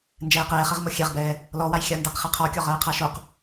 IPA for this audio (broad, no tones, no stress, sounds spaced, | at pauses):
n d͡ʒ ɛː q ɛː χ ɛ ʁ m o xʲ ɛ ʁ b ɛː | l ɔ w a j xʲ a n d æ q χ e qʰ ɔ kʲ ɔ ʁ ɜː qʰ a ʃ o q